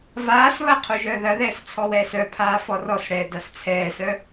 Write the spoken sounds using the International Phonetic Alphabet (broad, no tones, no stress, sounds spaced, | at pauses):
v aː s β ɐ qʰ u ʒ œː ð ɐ ð ɛː s t͡sʰ ɔ w ɛː s œ pʰ aː f ɔ r ɔ s ɽ ɛː d a s t͡sʰ ɛː s œ